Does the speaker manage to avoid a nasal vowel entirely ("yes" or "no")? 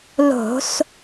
yes